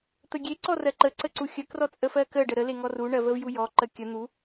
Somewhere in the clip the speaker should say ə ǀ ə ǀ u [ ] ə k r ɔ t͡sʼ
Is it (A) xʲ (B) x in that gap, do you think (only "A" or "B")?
A